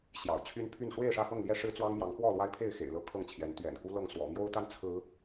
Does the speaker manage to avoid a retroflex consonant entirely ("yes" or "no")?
no